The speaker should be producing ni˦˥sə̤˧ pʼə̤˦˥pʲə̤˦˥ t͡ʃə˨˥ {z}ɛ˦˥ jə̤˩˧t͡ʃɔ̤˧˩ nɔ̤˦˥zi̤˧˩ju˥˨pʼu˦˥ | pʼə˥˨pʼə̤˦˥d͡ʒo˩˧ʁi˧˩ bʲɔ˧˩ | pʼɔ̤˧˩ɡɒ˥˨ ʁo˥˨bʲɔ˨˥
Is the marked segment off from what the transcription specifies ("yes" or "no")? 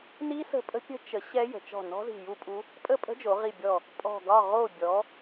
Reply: yes